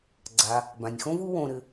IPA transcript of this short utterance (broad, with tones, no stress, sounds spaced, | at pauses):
ɡ͡ǀ a˩ | b ã˩ nʲ x õ˦ v u˦ w õ˨ ɾ ɘ˨